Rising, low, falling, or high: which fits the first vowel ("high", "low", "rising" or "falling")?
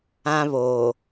high